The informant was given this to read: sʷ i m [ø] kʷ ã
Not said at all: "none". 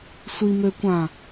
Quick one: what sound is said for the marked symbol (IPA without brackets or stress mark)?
ø